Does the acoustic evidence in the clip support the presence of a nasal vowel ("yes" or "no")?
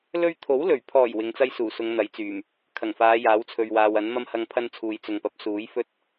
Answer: no